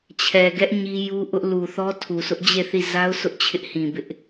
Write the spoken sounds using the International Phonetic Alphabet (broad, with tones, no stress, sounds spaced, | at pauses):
t͡ɕʰ ɛ˨ ɡ ɛ˦ ʔ ɲ i˦ j u˦ ʔ ʊ˦ ʔ l u˨ θ ɔ˦ tʰ u˨ sʰ ʊ˦ ʔ d͡ʑ e˦˨ θ i˦˨ z a˦ ʊ̯ s ʊ˦ ʔ t͡ɕʰ ɪ˦ ʔ h ĩ˨ b ɪ˦ ʔ